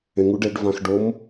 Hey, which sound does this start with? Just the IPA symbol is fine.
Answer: ẽ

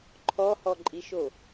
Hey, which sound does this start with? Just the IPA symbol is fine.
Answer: ǃʰ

